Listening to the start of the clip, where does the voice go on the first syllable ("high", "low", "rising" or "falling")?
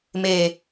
low